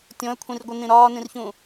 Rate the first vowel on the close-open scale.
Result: mid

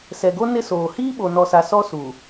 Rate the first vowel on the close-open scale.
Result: mid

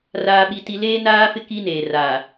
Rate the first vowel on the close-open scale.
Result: open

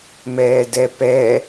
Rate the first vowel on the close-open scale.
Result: mid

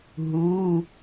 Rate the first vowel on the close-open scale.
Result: close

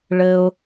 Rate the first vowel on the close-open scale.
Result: mid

